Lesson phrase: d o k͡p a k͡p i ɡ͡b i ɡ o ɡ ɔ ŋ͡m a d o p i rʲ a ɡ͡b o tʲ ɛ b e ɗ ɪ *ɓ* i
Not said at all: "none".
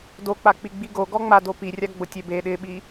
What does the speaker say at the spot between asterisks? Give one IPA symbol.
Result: ɓ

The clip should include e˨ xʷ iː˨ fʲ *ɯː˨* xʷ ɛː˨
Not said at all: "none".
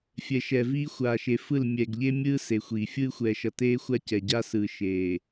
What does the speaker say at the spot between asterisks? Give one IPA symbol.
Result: ɯː˦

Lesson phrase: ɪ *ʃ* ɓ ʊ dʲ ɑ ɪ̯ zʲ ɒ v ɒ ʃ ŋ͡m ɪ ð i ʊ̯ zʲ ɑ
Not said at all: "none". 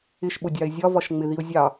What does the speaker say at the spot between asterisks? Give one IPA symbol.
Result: ʃ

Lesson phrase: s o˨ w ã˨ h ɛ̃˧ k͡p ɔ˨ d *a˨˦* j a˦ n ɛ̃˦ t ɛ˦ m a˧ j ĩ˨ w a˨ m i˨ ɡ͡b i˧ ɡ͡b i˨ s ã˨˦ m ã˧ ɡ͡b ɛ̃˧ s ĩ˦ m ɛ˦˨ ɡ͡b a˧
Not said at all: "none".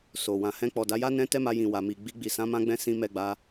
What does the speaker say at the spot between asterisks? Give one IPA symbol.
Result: a˨˦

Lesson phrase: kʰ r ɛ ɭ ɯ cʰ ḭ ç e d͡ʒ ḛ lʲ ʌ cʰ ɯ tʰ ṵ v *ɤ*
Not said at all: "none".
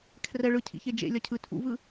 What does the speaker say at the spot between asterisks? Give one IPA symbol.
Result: ɯ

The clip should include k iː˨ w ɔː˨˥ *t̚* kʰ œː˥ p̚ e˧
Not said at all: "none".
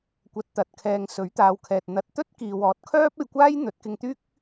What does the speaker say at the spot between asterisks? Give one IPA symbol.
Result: t̚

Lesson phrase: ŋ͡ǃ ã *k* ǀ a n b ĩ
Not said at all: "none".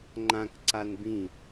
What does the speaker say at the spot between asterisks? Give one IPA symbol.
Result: k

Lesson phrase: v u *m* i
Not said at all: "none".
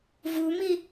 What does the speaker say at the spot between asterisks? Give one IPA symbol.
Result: m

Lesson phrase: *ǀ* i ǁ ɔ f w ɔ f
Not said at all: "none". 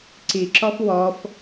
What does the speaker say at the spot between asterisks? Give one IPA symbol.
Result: ǀ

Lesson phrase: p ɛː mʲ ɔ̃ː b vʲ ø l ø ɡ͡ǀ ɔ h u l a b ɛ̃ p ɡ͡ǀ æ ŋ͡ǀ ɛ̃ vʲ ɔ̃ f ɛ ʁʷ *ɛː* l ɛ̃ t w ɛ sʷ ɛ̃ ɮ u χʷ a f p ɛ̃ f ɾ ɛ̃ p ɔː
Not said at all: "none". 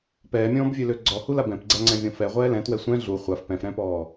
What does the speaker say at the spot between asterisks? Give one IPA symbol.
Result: ɛː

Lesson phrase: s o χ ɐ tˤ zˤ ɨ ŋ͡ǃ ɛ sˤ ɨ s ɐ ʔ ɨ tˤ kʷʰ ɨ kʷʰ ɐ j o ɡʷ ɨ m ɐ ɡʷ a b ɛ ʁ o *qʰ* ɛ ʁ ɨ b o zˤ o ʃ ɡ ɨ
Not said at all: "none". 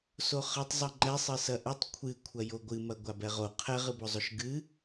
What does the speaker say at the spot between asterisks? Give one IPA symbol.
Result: qʰ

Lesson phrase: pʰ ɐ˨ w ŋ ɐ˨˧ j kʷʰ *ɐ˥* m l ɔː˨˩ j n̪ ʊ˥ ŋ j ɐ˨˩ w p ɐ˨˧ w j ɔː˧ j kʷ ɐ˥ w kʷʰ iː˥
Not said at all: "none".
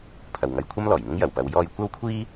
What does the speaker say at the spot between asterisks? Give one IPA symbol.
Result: ɐ˥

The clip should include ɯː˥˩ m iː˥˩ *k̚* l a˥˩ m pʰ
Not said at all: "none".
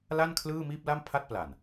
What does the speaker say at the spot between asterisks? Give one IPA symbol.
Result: p̚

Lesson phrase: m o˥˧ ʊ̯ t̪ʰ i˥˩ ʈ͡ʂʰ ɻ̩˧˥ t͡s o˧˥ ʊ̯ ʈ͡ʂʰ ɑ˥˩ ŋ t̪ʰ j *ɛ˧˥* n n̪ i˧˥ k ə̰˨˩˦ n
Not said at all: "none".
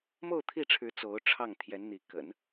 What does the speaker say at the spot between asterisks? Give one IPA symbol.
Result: ɛ˧˥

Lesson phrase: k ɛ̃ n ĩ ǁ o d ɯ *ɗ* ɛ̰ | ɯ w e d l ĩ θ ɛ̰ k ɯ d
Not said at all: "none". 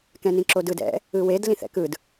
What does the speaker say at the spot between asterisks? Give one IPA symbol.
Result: d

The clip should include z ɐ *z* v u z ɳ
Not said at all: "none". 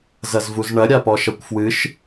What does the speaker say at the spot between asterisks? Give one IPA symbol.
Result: z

